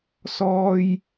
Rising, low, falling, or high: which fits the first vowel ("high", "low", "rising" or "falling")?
low